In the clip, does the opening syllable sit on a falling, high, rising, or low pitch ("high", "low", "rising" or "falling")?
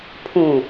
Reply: low